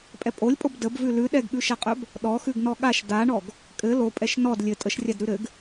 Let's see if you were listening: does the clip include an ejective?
yes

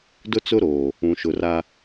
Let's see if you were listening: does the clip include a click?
no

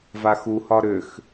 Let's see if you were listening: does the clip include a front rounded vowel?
yes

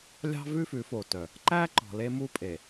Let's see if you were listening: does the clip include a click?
yes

